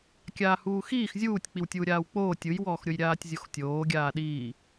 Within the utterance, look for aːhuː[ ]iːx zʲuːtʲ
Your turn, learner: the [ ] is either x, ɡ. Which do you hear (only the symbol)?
x